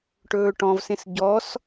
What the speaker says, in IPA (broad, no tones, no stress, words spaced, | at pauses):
ʈɵːʈɔ̃vsẽs ɟɔs